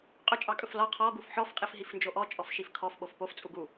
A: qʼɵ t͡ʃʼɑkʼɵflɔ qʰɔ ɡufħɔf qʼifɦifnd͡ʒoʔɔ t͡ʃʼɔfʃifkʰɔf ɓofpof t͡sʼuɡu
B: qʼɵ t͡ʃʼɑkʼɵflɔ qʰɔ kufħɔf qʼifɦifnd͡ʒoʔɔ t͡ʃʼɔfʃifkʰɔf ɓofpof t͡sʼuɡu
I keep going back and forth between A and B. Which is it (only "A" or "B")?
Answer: A